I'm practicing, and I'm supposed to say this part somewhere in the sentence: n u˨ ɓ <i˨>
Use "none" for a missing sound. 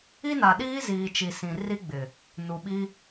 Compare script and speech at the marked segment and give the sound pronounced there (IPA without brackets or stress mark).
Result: i˦